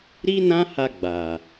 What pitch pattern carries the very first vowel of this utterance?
high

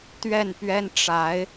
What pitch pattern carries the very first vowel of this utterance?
falling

